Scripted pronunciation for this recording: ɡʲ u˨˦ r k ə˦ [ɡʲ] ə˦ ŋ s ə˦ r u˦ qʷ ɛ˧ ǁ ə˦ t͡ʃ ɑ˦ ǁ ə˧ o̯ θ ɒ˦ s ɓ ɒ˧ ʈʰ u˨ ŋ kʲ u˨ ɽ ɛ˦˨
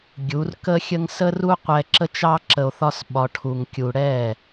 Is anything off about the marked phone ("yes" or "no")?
yes